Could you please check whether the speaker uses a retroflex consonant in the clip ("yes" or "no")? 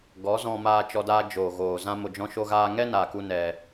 no